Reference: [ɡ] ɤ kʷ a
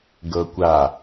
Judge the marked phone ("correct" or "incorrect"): correct